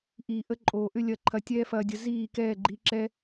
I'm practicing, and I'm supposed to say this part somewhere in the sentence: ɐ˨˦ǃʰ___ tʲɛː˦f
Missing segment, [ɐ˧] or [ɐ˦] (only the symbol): ɐ˧